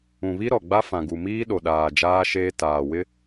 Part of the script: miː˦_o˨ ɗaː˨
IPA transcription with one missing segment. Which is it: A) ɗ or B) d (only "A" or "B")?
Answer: A